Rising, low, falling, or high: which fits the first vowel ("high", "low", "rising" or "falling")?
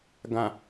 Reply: low